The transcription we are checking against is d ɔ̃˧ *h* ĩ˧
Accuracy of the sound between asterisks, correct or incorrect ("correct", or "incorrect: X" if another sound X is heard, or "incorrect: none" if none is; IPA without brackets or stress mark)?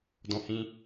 correct